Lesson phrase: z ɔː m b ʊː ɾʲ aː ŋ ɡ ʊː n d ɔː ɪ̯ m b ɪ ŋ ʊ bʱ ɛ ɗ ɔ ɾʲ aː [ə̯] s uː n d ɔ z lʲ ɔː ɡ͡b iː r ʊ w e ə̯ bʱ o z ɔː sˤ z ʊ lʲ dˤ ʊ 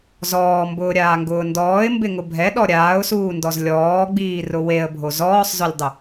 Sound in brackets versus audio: incorrect: ʊ̯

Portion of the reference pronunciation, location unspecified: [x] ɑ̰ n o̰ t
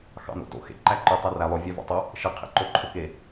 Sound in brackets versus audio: correct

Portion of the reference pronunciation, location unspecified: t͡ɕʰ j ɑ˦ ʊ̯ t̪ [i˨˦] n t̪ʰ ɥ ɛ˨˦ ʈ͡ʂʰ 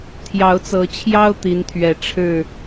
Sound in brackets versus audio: correct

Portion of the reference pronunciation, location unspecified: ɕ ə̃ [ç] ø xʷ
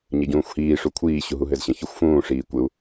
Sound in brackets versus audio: correct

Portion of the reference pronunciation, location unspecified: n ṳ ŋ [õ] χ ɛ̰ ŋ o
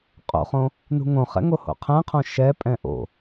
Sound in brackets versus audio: correct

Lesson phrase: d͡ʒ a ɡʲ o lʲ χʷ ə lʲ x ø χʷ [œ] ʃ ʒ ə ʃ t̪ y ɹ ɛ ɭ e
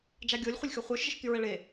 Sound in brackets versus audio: correct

